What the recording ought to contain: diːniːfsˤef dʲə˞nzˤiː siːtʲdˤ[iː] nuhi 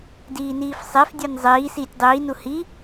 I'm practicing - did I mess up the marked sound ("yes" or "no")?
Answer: no